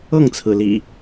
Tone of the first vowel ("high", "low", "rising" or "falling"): falling